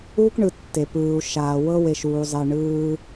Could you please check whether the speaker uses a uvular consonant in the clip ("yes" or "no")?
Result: no